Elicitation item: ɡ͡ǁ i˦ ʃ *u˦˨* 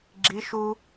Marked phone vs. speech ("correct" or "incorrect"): incorrect